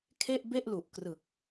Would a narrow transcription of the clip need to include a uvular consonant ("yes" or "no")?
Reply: no